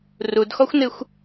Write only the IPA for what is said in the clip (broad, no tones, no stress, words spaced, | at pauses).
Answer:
rudxɔxʷnɨxʷ